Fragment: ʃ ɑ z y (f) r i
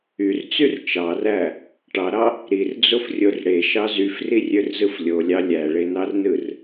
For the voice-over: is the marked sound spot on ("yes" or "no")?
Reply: yes